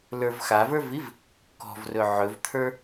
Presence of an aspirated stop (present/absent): present